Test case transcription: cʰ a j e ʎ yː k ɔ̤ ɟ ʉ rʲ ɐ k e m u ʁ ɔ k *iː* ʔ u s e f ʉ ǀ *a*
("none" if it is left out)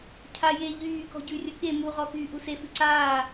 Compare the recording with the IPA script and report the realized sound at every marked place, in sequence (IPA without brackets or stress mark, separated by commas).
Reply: yː, aː